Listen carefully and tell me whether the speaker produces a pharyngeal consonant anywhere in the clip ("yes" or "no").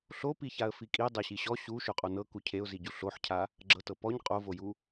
yes